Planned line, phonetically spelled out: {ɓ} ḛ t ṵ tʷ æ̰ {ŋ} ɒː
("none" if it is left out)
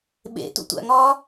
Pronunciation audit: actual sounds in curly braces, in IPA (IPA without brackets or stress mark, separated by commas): ɓ, ŋ